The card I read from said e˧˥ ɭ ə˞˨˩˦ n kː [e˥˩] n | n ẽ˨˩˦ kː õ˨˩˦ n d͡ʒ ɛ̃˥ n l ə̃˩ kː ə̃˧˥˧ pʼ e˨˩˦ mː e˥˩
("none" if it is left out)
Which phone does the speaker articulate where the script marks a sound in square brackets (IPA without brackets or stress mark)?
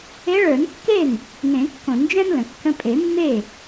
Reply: e˥˩